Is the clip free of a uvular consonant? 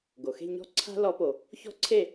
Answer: yes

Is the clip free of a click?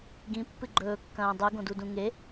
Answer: no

